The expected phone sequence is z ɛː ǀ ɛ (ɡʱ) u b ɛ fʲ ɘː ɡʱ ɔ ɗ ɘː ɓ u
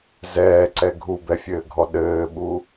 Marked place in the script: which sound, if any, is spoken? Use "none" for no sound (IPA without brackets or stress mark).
ɡʱ